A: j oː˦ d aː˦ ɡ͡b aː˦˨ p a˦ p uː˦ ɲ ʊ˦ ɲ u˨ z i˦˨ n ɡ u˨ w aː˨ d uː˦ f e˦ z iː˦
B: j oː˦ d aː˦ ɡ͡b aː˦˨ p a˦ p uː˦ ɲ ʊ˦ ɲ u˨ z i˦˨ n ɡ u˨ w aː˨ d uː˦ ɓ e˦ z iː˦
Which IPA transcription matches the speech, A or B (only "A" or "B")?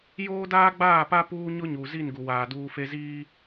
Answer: A